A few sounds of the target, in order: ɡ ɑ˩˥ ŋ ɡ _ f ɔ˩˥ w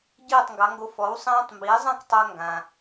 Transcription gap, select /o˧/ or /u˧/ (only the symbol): o˧